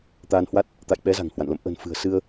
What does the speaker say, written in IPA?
t̪aː˧nhwa˦˥t̚ | t̪a̰˧˨jɓɛ˨˦ za̤˨˩ŋhwa̰˧˨n lə̰˧˨m ʔə̤˨˩n fɨ̤˨˩ə̯sɨ˧ə̯

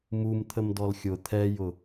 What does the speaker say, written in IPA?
mumt̪ʰəmdɔl xʲʊ t̪ʰɛjʊ

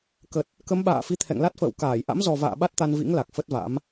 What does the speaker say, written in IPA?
kə˨˩t̚ | kə˨˦mɓa̰ː˧˨fi˧ t̪ʰɛ̰˧˨ŋla˦˥t̚fə̰ː˧˨w kaː˧˩jʔa̰˧˥mzɔ˨˩va̰ː˧˨ ɓa˦˥t̚t̪a˧nvḭ˧˥ŋ la˨˩k̚fə˦˥t̚va̰˧˥m

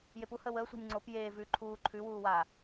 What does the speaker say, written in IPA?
jepu həːwəːsʷɑ̤nʲ ŋ͡ǀop jeː vʉ ǃʰuː ǃʰʉwuːwa

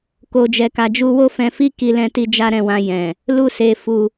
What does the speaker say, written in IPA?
ko˧d͡ʒɛ˧ka˧d͡ʒu˦ wo˦fɛ̃˧fi˦ ki˧lɛ̃˧ti˧ d͡ʒa˦ɾɛ̃˦˨wã˧ jɛ̃˨ | lu˦se˧fu˧

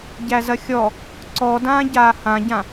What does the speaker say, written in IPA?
ɟæzɐxʲɔ | ǀɔdãːɟaː hãɟã

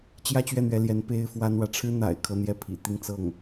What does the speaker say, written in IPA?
t͡ɕjä˥˧t͡ɕɥɛ˥˩n̪ɥɛ˧˥ljɛ˧˥n pe˥ɪ̯fwa˥nwä˨ ʈ͡ʂʰɻ̩˥n̪a̰˨˩ɪ̯ kʰɤ˥˧n̪jɛ˥˩pʰḭ˨˩ t̪i˥˧ŋt͡sɤ˥˩ŋ

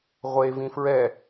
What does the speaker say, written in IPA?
ʁʷevĩ fɹɛ

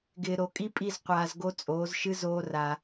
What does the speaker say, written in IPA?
ɡɪː˨ ɾo˨kʼi˦pʼi˦˨z qʷaː˧zɡo˦ t͡sʼoː˨˦zʃɨ˦ zoː˦ra˧

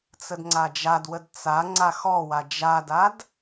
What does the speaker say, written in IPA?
t͡sədŋ͡ǀad͡ʒadwəd t͡sa ŋ͡ǀaxɔwa d͡ʒadad

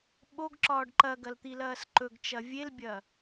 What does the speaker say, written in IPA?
ɓoɡǁɒːɖ ǃɐɡɐlt̪ilɐːs ǃɵɡt͡ʃɐ vʲelbʲɐː

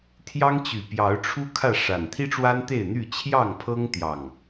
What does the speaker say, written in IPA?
t̪ʰjɑ˦ŋt͡ɕy˨˩pjɑ˨˦ʊ̯ʈ͡ʂʰu˦ kʰä˥˨ʂa˨˩n t̪ʰi˦ʈ͡ʂwa˦nt̪e˥˨ɪ̯n̪y˥˨ t͡ɕʰjɑ˥˨ŋpʰɤ˦ŋt̪jɑ˨˩ŋ

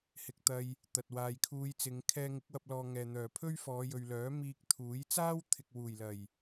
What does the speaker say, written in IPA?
hɪ˨k̚t̪ɐ˧j | t̪ɐ˨t̚waː˨jkʰuː˧jt͡sɪ˨˧ŋ kʰɛː˧ŋɪ˨˥k̚wɐ˧p̚lɔː˨ ŋɛː˨ n̪œː˨˩pʰɵ˥ɥ fɔː˨˧jɵ˨ɥlœː˨˥ miː˧k̚t̪ʰuː˨˥j t͡saː˥wt̪ʰɪ˨k̚ wuː˨˩jlɐ˨˩j

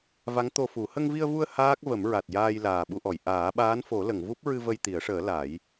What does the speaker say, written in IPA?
va˧˥ŋt̪o˧fu˨˩˦ hə˧ŋvi˧ə̯vu˧ə̯ haː˦˥k̚ və˨˩˦mɹa˨˩t̚jaː˧j laː˨˩ɓu˧ʔɔ˨˩˨j ʔaː˨˩˦ɓaː˧˥n fo˨˩˦lə˨˩˨ŋvu˦˥p̚ɹɨ˧ və˧jt̪i˨˩˦ə̯ʂəː˨˩˦ la˨˩˦j

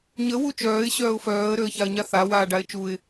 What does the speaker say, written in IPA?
ɲə wut͡ʃœːɪ̯ ɕœːʊ̯fœːə̯ ɾøə̯çaə̯ɲaθa waːɖaɪ̯t͡ʃuɪ̯

